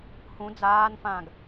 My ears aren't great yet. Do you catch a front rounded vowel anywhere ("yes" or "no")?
no